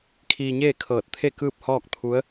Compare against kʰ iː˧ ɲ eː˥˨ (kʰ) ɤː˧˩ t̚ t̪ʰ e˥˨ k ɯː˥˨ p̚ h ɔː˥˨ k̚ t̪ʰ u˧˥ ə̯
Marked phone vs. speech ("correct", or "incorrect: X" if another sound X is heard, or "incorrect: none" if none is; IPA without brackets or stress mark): correct